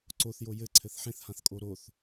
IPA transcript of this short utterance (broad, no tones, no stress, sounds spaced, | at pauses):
ǀ o θ j o j ɘ ǀʰ ɘ θ ħ ẽ θ h ã θ kʼ o ɾ o θ